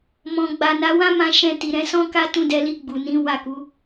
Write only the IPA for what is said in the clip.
mɔ̃˨ ɡ͡ba˨na˨˦wã˦ mã˧ʃɛ̃˧ ti˨ɾɛ̃˨˦sɔ̃˦ ka˦tũ˦˨dɛ˧li˧ ɡ͡bu˨nĩ˨˦ wa˦˨ku˨˦

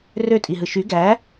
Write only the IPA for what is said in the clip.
røtʼiɦɯ ʃy ɡæ

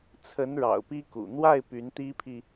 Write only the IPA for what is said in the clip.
t͡sʰə˧˥nɻɑ̰˨˩ʊ̯ pi˥kṵ˨˩ n̪wa˥˩ɪ̯ py˧˥nt̪i˥pʰi˨

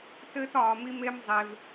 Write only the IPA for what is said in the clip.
tɘː˦tɒː˧mi˦me˦m zˤe˦v

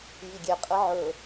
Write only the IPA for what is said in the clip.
jiɡʲɛ qʼəʕɵ

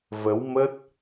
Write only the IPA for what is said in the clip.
və˨˦wmə˦˥t̚

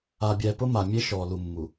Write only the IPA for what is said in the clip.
a˨bʲɛ˨ pʊ˦ma˨mʲe˦ ʃɔ˨lu˨mːu˨

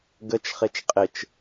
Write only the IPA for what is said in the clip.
ɡət͡ʃχet͡ʃ qʼɪt͡ʃ

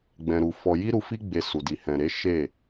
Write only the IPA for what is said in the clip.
ɡ͡bɛ̃˧ɾu˧fɔ˧ ji˦ɾu˧fi˦ ɡ͡be˧ su˨di˨ hɛ̃˨ɾe˨˦ ʃe˦˨

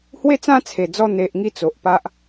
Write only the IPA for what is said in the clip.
hwe˥˧t͡sã˦t͡sʰe˨˩d͡zɔ˧ n̪e˨ʔ ŋi˥˧t͡so˨ʔ pa˦ʔ

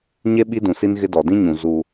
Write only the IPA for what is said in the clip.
ɲe˦ ɓi˦dũ˨si˦n ɣɪ˦dɔ˨ dĩ˦ɲũ˨ zu˦

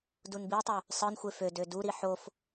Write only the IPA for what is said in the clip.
dunbitˤø | sˤɯnxʷe fød øduɾi ħof

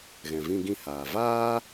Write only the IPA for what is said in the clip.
ɣɛ̃˨vĩ˧ɡĩ˧haː˨ vaː˦

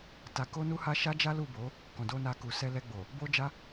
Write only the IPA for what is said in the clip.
ta˧ko˦nu˦ha˦ ʃa˦d͡ʒa˦ lu˦˨bo˨˦ | kɔ̃˨do˧ na˦ku˧ sɛ˧lɛ˧ɡ͡bo˨ | bo˦d͡ʒa˦

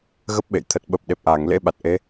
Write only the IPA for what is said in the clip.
ɣə˦˥p̚ɓḛ˧˨j t̪ʰə˨˩t̚ɓə˨˩p̚ ɗe˨˩p̚ʔaː˧˩ŋlḛ˧˥ ɓa˨˩t̚ʔe˨˦

